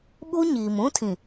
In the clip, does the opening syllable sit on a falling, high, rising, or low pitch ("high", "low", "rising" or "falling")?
high